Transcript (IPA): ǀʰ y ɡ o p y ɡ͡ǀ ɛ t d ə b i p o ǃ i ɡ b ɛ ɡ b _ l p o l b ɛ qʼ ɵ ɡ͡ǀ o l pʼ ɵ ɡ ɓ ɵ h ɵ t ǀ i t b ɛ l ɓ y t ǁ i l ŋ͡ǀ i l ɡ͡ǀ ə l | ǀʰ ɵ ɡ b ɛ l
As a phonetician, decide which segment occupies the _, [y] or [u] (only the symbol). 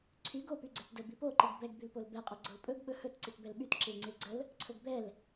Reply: y